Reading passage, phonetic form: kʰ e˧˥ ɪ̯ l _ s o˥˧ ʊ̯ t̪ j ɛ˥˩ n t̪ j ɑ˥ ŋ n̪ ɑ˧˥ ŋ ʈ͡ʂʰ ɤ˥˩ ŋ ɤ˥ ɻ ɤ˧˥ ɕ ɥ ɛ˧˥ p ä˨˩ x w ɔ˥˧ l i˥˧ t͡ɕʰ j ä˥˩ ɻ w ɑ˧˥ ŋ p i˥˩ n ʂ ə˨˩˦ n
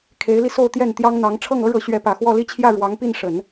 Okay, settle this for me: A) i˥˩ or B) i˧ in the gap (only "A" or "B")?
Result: B